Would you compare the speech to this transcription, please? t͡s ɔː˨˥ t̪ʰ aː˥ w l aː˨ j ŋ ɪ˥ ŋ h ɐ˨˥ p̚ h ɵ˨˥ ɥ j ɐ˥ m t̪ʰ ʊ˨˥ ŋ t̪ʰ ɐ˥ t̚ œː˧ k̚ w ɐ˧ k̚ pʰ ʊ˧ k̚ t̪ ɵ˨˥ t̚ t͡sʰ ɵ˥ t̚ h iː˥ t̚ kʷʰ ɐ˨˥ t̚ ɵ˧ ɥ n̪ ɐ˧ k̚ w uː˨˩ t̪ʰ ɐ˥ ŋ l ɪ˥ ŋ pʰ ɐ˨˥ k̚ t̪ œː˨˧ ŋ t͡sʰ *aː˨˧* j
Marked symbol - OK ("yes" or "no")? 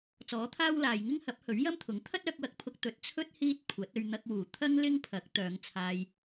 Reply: no